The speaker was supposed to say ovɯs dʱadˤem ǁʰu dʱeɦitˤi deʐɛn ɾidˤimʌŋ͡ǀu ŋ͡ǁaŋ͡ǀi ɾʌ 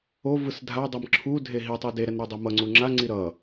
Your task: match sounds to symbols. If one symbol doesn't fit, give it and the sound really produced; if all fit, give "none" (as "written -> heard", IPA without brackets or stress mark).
ʐ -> ɾ